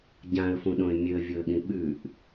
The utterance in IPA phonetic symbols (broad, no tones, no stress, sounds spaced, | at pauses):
ɟ ã ə̯ f ũ ɗ õ ɪ̯ mʲ ɵ ə̯ vʲ o ə̯ ɠ ĩ ɓ ʉ ʔ